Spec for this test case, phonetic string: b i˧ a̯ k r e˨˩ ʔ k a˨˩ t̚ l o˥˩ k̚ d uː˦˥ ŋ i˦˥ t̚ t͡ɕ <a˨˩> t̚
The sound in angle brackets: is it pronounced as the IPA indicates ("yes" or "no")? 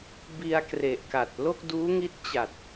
yes